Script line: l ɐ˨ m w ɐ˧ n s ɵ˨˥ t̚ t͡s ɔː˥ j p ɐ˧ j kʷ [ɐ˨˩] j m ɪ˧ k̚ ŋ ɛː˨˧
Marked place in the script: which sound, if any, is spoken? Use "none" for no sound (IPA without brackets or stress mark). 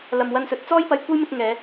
ɐ˥